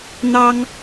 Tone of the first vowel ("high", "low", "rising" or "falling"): high